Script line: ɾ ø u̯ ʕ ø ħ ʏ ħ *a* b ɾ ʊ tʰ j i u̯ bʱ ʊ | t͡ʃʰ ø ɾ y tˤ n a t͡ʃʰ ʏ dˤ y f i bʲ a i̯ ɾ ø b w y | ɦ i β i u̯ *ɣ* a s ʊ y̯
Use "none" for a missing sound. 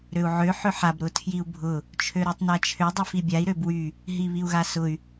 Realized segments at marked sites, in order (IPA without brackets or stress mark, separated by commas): a, ɣ